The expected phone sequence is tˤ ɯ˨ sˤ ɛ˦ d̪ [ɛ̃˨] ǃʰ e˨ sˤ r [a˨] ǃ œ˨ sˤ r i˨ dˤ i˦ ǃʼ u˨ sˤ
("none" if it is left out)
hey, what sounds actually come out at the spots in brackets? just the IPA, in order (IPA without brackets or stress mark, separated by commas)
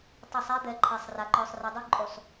ɛ˨, a˨